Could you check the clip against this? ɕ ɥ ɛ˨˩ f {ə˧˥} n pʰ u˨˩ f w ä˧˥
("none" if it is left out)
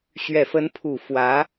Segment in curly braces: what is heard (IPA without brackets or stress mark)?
ə˧˥